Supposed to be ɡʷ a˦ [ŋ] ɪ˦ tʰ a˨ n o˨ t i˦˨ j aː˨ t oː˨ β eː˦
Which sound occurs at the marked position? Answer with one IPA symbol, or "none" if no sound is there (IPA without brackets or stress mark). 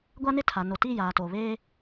n